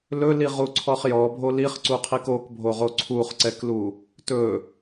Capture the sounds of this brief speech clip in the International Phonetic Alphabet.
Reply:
l ɵ l i ʁ u ǀʰ ɔ χ j ɔ bʱ o l i χ ǀ u qʰ i k o k bʱ o ʁ o ǀʰ u χ ǀ ɛ k l u | t ɵ

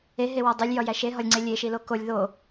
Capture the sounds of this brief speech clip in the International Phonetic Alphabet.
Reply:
e ɦ e w ɒ dˤ o lʲ j ɒ j æ ʃ e ɦ ɒ lʲ ŋ͡ǀ e lʲ e ʃ i l o k o lʲ ð o

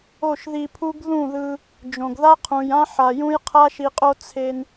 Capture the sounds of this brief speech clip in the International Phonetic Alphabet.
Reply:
o˦˨ ʃ ð i˧ pʰ u˦ ɡ ð ũ˦˨ ð ɯ˧ | d͡ʒ õ˨ ɡ ð a˦ qʰ ũ˨ j ã˦ ħ a˨ j ũ˦ j qʰ a˦ ʃ i˧ qʼ o˦ t͡sʰ e˧ n

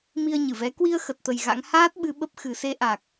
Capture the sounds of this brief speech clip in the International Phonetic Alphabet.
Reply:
m i˧ ə̯ ɲ ɨ˧˩ v ɛ˨˦ k w i˧ ə̯ x ə˨˩ t̚ t̪ ə˨˩ j ɣ a̰˧˥ ŋ h aː˦˥ t̚ ɓ ɨ˧ ɓ ə˦˥ p̚ x ɨ˨˩ s e˧ ʔ a˨˩ k̚

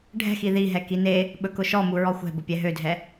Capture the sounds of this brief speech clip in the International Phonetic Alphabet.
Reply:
ɖʱ ɛ̤ x i ð i ɦ ɛ k i n e | ɓ ɵ k ʊ ʃ ɔ m u ɹ ɔ xʷ ɛ̤ b ʊ pʲ ɛ ɦ ø dʱ ɛ

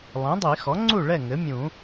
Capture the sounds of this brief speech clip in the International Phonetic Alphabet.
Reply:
lˠ ĩ˩˥ dˤ i˨˩˦ x ɔ˩˥ ŋ͡ǀ u˥˨ ɭ ɛ˥˨ ŋ ɘ˩˥ mʲ ũ˨˩˦

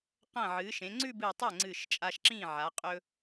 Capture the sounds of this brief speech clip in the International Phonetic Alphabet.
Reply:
q ɐ̃˧˩ ʕ ɨː˩˧ ʃ ẽ˩˧ ŋ͡ǀ ʉ˥˧ b ɨ˧˩ tˤ ɐ˥˩ ŋ͡ǀ ɨ˧˩ ʃ t͡ʃʼ a˧ ʃ ǁ ĩ˥˩ ʕ a˩˧ qʼ ɵ˧

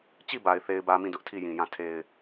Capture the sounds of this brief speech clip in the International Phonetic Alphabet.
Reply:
t͡ɕ i˦˨ b a˨ ɪ̯ θ e˦ ɪ̯ b ä˦ m ĩ˦˨ d ʊ˦ ʔ tʰ i˦˨ j ĩ˨ j ã˦˨ tʰ e˦ ɪ̯

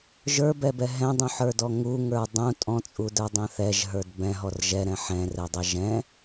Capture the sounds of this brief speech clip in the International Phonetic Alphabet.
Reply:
ʒ ə˞ b ɛ b ɛ ɦ ɛ̃ dˤ ũ ħ ə˞ d ɔ ŋ u ŋ ə˞ dˤ ũ tʼ ɔ̃ t͡sʼ u d ə˞ dˤ ɛ̃ θ ɛ ʒ ɦ ə˞ d b ɛ̃ ɦ ɔ r ʒ ɛ ɾ ɛ̃ ħ ɛ̃ r ɛ dˤ ɛ ʒ ɛ̃

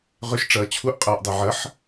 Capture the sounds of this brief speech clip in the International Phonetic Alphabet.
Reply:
ʁ ʏ ʃ ʈ͡ʂ ɐː t͡ɕʰ u ʔ qʼ ɐː ʔ dˤ e ʕ ɐ ħ

